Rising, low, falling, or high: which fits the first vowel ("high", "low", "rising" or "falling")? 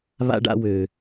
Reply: high